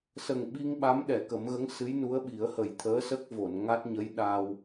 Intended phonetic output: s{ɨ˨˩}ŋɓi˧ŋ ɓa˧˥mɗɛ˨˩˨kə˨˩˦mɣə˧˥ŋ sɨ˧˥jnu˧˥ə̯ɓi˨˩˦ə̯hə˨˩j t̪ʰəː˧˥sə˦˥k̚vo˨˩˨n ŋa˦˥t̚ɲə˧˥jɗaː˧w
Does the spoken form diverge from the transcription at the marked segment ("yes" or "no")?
yes